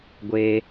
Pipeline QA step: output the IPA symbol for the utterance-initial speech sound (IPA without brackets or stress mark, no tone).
ɡʷ